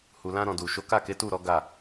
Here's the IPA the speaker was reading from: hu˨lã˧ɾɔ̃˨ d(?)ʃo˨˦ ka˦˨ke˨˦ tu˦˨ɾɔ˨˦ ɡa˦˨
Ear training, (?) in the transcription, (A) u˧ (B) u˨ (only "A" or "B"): B